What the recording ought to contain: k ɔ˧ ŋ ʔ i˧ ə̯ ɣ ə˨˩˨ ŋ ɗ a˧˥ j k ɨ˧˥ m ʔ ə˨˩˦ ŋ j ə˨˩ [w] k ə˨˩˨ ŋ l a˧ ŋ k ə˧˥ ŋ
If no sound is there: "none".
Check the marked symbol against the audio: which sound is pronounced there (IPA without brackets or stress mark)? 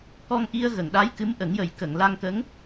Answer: j